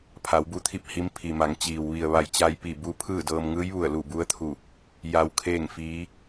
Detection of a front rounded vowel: absent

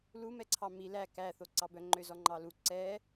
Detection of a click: present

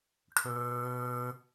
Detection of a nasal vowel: absent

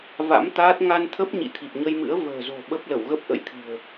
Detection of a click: absent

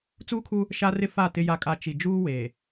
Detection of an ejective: present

